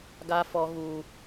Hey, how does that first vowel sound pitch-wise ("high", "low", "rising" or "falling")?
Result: high